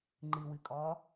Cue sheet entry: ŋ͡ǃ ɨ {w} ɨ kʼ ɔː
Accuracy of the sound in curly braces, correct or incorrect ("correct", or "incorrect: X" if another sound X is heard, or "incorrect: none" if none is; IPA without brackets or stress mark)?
correct